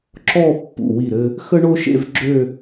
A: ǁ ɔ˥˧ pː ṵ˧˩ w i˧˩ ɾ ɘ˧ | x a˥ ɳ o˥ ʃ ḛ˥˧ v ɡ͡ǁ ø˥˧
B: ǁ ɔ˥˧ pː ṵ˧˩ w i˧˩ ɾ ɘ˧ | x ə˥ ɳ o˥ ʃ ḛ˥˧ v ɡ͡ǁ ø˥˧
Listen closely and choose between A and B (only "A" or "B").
B